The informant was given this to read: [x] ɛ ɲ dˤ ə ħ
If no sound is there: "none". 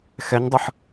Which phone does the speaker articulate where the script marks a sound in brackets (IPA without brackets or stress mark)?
x